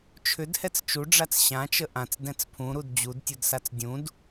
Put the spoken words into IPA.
t͡ʃʰʏdhɛt͡s t͡ʃuɖ͡ʐat͡s ɕãt͡ʃə ʔãt͡sdɛ̃t͡s pʰũɾud d͡ʑudtʲudsat͡s dʲũd

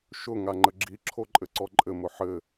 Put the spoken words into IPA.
ʃʊ ŋaŋ͡ǃəɡ͡ǁi ǁʰoǃʼɘǀɔǃʼɘ mʊħɘ

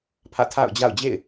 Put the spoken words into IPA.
pʰä̰˦˨tʰa̰˦˨ʊ̯ d͡ʑa̰˦˨ʊ̯ d͡ʑḛ˦˨ɪ̯

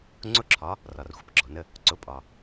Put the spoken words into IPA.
ŋ͡ǀʊ˧˥ǁʰɒ˩˧ | rɒ˩rxʷə˩pɡ͡ǁɔ˩nə˧ | ǀʊ˩˧pʼɒ˩

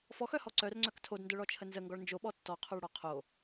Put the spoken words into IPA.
fɔxœhɔ ǀœrŋ͡ǀœk tʰodndœɭɔt͡ʃʰə nzəŋɡɔɭ nd͡ʒoɓɔ tːɔqʰoɭɽɔ qʰo

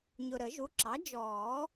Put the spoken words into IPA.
ɲʊ˨ɾə˨˩˦ʒu˩˥ǁɑ˩˥ d͡ʒɔː˨˩˦

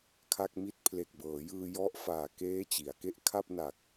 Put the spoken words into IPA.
kʰa˥˩k̚mi˥˩t̚ pʰle˨˩k̚bɤː˩˦jɯː˧ jɔ˥˩ʔ faː˨˩keː˦˥ t͡ɕi˩˦a̯ke˥˩ʔ kʰa˥˩p̚na˨˩k̚

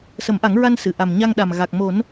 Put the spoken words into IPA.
sə˨˩˦mʔa˨˩˦ŋ ɹa˧nsɨ˨˩˨ ʔa˨˩mɲa˧ŋɗa˨˩m ɣa˨˩k̚mo˨˩˦n

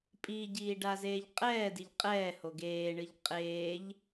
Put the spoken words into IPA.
pʼiɟiː ɖazeːʎqʼɛːdiʎ qʼɛː hoɡeːɳɨʎ qʼeːʎ

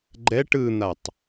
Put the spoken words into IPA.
ɡ͡ǃɛʈ ɯn̪atˤ

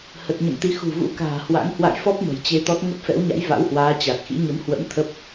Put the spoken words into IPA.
hə˨˩t̚ɲə̰˧˨mt̪i˨˦ xṳ˨˩vṵ˧˥ka̤ː˨˩hwa̰˧˥ŋ hwa̰˧˨jfɔ˦˥p̚ mə̤˨˩jt͡ɕe˧t̪ɔ˦˥t̚ ŋə˦˥p̚fɛ̰˧˥wɲa̰˧˥j va̰˧˥whwaː˨˦t͡ɕa˨˩t̚xḭ˧˥ ɲə˨˦mhwə̰˧˥m t̪ʰə˦˥p̚

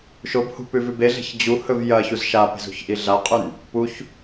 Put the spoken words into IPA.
ʃobhṳpʉvʉb eɮe̤ç d͡ʑuhɵv jɐçuz ʃape̤zṳçʔi ɮaqʼʉn | puç

